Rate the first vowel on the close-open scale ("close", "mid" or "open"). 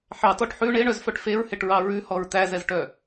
open